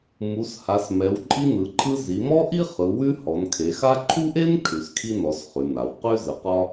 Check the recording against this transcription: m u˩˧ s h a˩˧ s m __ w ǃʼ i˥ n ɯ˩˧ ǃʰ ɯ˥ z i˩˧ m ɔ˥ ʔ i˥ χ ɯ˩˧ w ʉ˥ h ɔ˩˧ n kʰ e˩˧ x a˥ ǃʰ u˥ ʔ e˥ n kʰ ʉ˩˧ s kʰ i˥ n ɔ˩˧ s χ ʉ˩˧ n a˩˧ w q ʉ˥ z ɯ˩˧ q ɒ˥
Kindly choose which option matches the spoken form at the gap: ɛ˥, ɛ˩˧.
ɛ˩˧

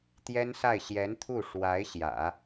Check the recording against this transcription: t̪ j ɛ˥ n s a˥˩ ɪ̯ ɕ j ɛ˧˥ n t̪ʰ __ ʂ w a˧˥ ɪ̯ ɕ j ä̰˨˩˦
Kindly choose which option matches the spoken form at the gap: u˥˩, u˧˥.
u˥˩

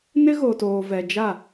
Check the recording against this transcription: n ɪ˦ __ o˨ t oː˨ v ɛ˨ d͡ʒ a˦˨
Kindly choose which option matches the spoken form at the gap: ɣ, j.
ɣ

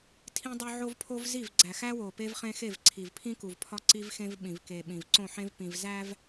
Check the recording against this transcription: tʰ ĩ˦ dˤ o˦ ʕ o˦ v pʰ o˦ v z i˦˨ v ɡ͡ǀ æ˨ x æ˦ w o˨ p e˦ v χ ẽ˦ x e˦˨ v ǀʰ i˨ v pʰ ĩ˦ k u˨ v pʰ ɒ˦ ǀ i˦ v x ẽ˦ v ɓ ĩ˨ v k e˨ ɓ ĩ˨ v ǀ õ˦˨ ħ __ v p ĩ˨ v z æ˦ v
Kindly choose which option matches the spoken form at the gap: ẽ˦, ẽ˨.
ẽ˦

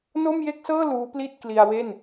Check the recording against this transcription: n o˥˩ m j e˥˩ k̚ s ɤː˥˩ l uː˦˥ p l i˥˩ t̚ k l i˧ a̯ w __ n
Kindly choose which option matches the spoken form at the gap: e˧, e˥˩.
e˥˩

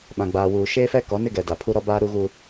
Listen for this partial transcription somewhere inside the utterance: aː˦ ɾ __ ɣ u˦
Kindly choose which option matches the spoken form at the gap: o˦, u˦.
u˦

